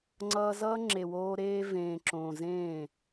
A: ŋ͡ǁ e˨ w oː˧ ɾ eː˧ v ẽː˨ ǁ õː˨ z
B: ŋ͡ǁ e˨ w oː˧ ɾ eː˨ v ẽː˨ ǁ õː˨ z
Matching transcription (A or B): A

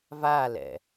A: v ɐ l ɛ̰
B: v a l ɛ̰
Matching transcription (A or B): B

